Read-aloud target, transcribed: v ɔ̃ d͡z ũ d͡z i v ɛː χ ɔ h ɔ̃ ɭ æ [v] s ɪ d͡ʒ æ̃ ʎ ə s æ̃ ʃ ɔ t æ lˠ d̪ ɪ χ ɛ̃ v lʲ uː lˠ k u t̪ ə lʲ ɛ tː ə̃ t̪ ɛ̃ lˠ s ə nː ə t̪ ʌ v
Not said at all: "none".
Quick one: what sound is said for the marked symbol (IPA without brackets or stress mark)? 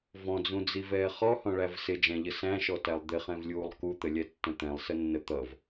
v